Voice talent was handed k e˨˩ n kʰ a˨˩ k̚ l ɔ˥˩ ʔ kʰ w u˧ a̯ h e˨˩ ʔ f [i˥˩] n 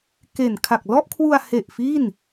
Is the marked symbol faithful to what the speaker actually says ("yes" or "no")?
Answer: yes